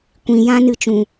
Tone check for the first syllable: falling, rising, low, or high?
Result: low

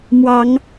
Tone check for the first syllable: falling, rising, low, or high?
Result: rising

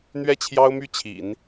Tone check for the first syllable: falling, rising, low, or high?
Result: falling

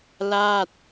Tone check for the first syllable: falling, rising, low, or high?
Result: falling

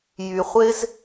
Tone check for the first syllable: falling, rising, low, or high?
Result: low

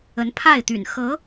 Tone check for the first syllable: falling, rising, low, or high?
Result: rising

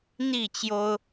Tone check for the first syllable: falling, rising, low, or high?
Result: falling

